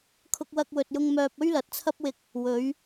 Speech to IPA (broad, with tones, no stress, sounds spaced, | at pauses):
kʰ ʊ˧ k̚ w ɐ˧ k̚ w ɵ˨ t̚ j ʊ˧ ŋ m œː˥ p̚ ɵ˥ ɥ l ɐ˨˥ t̚ t͡sʰ ɐ˥ p̚ w ɪ˧ k̚ | w ɵ˨˥ ɥ